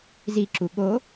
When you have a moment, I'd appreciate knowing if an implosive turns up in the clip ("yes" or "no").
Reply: yes